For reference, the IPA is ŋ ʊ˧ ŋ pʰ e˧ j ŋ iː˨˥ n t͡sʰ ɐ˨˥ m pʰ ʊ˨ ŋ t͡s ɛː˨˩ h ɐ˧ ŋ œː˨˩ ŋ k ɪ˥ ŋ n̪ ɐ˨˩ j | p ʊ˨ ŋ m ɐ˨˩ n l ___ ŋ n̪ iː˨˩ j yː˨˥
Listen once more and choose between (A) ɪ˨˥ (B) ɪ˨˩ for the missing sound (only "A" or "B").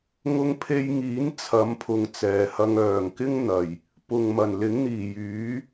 A